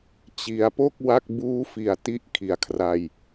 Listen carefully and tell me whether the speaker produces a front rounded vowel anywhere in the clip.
no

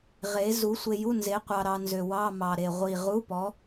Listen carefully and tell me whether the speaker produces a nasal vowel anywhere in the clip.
no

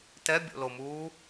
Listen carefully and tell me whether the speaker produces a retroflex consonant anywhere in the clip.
no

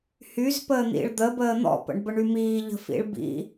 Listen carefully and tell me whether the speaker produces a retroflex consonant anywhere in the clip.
yes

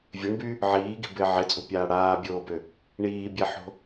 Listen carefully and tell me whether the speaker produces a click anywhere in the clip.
no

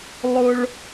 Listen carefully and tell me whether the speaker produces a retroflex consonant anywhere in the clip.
yes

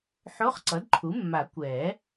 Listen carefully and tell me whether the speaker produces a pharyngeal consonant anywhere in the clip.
yes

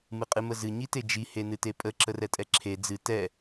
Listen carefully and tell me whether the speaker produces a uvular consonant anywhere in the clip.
yes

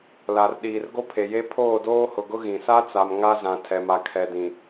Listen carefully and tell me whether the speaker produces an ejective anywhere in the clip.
no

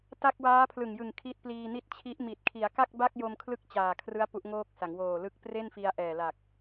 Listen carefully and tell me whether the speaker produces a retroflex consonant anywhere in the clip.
no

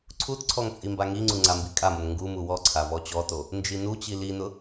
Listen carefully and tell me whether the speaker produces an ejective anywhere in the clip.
yes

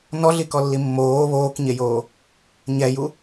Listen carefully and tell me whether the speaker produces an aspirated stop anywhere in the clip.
no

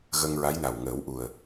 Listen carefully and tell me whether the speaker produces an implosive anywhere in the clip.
no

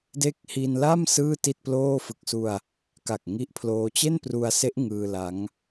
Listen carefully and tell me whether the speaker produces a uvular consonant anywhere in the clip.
no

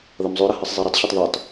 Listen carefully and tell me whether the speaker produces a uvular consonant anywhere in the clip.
no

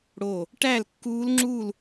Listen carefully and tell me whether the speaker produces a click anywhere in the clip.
yes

